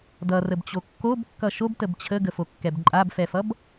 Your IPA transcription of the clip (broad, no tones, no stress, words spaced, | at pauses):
dʌrəbt͡ɕo kːobkːʌ ʃobtəb t͡ɕʰəɡəfokːɛb ǃʼabfɛfʌb